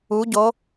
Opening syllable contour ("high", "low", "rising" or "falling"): rising